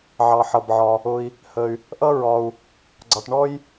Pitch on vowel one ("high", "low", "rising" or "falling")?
low